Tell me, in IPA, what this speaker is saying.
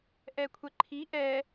ʔɛkʷʰɛǃʰi ʔɛ

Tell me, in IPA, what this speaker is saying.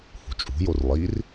hṳt͡ʃʼṳjor lˠir

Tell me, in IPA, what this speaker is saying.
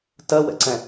tɜwɛ̰ǀɛ̃

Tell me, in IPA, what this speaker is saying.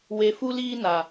we˨fu˦liː˦na˨

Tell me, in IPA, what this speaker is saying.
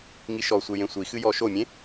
ŋiʃɔsʷe jẽsʷixɨ jɔʃomʲẽ

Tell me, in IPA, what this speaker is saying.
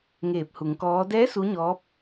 ŋeː˧˩p̚hu˩˧ŋkɔː˧˥ dɛː˧˥ su˧˥ɲɔː˧˥p̚

